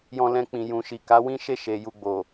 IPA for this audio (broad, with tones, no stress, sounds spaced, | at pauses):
j ɔ̃˧ l ɛ̃˧ k͡p ĩ˨ j ũ˨ ʃ i˨ k a˨˦ w ĩ˦ ʃ e˦˨ ʃ e˨ j u˧ ɡ͡b o˨